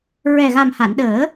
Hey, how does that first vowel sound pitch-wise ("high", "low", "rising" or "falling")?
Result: low